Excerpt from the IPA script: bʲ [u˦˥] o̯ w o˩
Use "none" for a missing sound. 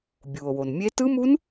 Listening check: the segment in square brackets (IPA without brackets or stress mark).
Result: u˩